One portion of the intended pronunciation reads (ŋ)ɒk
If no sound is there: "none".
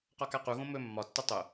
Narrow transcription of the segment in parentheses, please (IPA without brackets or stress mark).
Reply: q